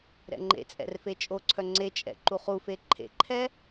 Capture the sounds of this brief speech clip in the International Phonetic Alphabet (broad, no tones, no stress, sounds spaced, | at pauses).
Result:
ɾ ɛ̰ ŋ͡ǃ ḛ t͡sʼ ɛ̰ r f e t͡ʃʼ o ǀʰ œ ŋ͡ǀ e t͡ʃʼ ɛ̰ ǃ u χ u f e ǃʰ ḛ ǃʰ ɛ